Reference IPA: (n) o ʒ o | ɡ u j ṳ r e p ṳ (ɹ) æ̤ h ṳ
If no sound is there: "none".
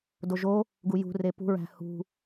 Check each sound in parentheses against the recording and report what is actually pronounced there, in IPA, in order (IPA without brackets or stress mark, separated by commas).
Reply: d, ɹ